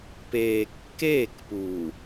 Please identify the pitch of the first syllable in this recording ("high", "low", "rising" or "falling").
low